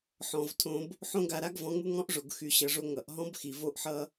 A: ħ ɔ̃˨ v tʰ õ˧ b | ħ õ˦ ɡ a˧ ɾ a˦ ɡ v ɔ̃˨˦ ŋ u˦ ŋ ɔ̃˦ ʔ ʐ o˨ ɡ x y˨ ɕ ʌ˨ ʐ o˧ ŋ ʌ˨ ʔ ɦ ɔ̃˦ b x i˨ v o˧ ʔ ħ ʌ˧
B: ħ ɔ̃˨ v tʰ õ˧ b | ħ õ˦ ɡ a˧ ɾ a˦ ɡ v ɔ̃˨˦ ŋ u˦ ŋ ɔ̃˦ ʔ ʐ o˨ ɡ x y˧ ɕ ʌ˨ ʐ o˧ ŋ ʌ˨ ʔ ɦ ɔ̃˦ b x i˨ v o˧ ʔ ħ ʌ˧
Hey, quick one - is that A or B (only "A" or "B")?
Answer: A